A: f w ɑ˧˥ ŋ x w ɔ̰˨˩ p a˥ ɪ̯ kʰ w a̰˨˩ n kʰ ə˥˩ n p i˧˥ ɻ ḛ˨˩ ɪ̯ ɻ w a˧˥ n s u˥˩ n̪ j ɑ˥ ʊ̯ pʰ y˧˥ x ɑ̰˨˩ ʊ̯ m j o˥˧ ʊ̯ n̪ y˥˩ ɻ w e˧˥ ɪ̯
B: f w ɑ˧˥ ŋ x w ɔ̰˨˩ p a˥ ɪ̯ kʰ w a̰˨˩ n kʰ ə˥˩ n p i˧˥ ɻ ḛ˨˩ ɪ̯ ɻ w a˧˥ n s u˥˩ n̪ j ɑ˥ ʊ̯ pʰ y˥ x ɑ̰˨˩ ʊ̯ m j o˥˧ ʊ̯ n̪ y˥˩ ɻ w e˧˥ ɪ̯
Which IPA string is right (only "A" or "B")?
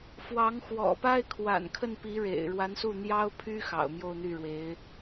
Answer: B